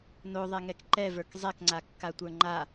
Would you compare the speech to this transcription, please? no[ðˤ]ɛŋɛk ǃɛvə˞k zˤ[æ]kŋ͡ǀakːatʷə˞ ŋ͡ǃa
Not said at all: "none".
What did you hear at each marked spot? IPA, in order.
ðˤ, ɛ

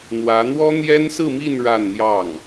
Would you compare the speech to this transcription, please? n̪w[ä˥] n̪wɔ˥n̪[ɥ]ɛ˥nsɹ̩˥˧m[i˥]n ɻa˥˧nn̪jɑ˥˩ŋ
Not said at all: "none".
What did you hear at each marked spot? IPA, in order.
ä˧˥, j, i˥˧

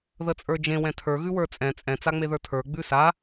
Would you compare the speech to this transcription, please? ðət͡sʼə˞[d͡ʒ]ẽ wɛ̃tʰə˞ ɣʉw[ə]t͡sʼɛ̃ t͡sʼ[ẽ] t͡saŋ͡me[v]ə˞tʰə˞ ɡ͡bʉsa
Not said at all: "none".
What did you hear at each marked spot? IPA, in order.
d͡ʒ, ə˞, ɛ̃, ð

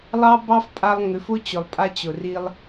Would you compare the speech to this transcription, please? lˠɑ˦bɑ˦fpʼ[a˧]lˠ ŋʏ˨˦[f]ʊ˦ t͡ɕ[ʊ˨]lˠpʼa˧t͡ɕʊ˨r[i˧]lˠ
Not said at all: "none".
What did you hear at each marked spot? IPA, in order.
a˧, f, ʊ˨, i˧

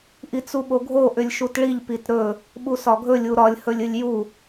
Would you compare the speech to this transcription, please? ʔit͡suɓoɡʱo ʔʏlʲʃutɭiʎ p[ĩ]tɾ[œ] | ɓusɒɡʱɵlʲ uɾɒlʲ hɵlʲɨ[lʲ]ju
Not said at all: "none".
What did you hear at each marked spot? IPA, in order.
i, ɵ, lʲ

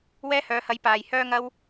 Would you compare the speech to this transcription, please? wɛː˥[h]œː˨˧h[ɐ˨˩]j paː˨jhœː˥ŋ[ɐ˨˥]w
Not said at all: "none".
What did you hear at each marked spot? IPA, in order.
h, ɐ˨˥, ɐ˥

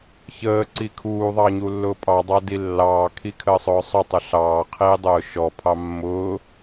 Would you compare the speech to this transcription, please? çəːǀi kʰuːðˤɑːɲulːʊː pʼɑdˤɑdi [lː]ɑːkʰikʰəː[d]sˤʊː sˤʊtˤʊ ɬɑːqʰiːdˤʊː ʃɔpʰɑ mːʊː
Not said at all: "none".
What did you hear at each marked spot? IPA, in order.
lː, none

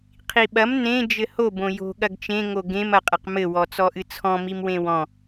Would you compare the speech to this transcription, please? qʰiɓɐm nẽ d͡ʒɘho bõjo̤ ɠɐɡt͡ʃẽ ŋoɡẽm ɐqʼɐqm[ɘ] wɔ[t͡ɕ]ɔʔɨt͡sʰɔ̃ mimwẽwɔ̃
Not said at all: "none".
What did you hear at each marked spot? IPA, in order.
ɘ, t͡s

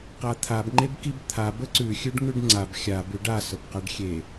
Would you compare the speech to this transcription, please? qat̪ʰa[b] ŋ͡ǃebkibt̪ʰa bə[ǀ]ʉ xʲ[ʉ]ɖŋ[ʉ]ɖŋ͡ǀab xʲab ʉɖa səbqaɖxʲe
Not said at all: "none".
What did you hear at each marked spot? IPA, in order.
b, ǀ, ʉ, ʉ

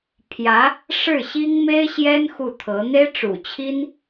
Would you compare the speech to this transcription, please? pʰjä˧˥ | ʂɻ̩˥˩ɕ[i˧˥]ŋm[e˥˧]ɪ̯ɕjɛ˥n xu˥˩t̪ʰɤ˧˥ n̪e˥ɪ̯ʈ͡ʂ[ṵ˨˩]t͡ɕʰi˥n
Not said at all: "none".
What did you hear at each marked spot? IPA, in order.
i˥, e˥, ṵ˨˩

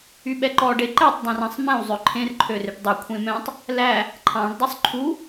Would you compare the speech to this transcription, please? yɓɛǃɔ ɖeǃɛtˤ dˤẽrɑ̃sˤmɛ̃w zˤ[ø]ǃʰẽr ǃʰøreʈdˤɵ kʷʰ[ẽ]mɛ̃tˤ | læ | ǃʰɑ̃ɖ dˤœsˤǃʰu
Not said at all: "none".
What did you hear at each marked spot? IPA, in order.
ø, ẽ

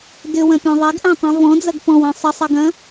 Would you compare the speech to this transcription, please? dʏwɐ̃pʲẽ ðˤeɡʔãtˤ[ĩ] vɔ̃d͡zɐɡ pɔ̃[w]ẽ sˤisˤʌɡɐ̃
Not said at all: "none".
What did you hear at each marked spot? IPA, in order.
ĩ, w

